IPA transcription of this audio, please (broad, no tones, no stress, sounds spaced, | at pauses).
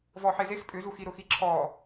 v ɔ ħ e z e x pʼ ʏ z u x i ɾ ʊ x i ǁʰ ɔː